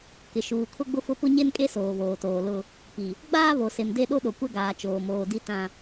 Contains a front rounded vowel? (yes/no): no